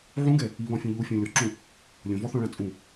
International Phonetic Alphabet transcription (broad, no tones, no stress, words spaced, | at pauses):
ʕũɡɛ | iβɔ̃fʲũ ʎufʲɔ̃ lʲɔǁũ | lʲõvɔθɔ̃ɭã t͡sʼũ